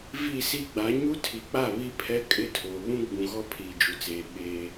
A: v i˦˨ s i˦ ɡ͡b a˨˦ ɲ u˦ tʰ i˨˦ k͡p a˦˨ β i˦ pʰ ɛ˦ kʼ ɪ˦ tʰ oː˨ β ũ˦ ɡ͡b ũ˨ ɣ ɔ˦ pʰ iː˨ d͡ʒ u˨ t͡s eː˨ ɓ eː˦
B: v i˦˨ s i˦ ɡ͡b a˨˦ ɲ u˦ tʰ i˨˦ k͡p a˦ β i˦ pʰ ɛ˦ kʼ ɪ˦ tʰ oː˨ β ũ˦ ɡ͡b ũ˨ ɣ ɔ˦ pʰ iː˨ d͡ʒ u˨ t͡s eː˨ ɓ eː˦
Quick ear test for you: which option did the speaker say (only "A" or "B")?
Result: A